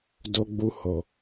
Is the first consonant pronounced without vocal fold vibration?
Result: no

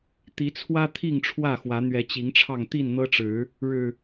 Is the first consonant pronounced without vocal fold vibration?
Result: yes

